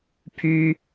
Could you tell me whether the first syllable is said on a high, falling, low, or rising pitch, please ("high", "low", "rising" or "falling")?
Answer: high